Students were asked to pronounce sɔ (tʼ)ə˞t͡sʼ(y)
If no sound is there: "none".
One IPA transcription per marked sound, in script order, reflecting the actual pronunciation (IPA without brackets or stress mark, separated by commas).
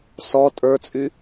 tʼ, y